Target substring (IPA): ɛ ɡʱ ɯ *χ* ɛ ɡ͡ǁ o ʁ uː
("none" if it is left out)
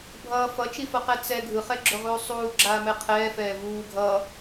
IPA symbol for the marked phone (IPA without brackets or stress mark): χ